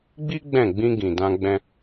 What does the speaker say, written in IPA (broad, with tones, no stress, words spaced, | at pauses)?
ɡ͡bi˦ ɡ͡bɛ̃˦˨ ɡ͡bĩ˧ ɡĩ˨dã˧ ɡ͡bɛ̃˧